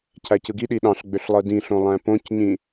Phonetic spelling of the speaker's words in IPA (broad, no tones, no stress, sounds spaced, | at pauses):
cʰ æ c ɯ ɡ i ɗ i ɗ ɑ̃ ɬ ɡ͡b ø ɬ lˠ ɯ d ĩ ɬ õ lˠ æ̃ p õ c ɲ ĩ